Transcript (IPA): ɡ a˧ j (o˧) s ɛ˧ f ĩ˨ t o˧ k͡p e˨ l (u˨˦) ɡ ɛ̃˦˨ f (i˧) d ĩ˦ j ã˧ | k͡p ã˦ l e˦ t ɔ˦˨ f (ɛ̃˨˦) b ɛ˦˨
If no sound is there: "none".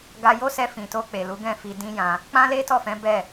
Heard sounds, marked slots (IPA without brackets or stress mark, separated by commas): o˦, u˨˦, i˧, ɛ̃˨˦